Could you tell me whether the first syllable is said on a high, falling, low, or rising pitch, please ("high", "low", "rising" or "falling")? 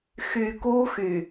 low